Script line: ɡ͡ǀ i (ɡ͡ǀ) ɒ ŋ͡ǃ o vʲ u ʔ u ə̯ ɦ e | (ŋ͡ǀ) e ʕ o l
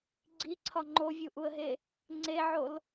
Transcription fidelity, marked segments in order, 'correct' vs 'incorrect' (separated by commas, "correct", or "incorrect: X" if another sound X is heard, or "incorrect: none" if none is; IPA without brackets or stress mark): incorrect: ǀʰ, correct